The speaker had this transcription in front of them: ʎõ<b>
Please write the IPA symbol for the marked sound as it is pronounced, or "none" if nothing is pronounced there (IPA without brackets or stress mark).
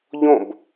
b